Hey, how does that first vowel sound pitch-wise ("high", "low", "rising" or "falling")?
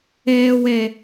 low